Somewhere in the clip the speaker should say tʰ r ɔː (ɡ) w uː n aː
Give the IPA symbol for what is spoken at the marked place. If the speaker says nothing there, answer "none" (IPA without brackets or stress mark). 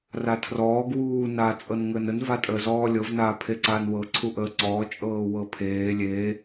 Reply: ɡ